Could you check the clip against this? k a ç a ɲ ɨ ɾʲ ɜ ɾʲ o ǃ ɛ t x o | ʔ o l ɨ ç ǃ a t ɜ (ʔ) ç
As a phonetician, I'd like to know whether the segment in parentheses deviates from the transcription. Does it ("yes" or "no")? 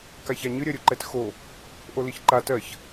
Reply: yes